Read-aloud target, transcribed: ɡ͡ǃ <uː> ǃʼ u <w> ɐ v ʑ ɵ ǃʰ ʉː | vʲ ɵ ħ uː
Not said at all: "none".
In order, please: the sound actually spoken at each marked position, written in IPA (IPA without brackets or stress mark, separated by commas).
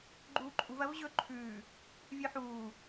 uː, v